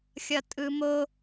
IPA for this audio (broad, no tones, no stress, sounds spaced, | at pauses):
xʲ ʌ tʼ ɯ m o